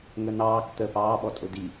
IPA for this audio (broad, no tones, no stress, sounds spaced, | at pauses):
ŋ ə n ɑː k t̪ ə p ɑː ɓ ɔ tʼ ʊ d i